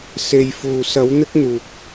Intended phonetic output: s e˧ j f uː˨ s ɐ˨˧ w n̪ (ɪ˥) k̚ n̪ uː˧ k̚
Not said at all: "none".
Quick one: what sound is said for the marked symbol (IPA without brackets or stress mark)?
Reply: ɪ˥